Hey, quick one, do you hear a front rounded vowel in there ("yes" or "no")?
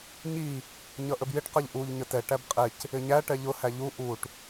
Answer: no